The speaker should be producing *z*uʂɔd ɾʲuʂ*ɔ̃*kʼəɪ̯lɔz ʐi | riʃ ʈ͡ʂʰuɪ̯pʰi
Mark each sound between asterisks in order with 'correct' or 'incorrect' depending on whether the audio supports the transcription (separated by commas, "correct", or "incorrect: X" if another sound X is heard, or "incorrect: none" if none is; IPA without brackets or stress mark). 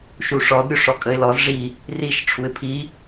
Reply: incorrect: ʃ, incorrect: ɔ